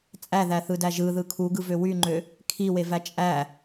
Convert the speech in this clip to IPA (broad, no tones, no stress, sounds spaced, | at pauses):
t͡sʼ æ ð æ θ ɯ d æ ʒ ɯ ð ɯ kʰ u ɡ ɯ v ø w y ŋ͡ǃ ø | kʰ i w e v æ t͡ʃʼ æ